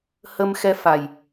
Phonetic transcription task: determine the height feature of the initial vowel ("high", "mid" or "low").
mid